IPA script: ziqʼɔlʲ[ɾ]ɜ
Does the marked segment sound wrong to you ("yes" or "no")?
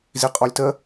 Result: yes